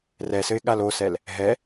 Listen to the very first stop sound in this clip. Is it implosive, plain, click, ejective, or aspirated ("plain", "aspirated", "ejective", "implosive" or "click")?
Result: implosive